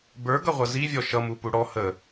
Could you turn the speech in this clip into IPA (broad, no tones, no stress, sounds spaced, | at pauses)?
b ə˞ ɡ ʌ ʁʷ ʌ z i vʲ ɔ ʃ ʌ m u p u ɽ ɔ h ə